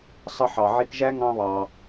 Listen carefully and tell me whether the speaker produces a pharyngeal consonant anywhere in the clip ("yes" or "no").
yes